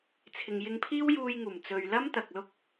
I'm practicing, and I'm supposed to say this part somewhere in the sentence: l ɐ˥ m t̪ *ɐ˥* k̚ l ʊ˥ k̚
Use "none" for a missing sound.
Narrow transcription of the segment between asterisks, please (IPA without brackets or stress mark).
ɐ˨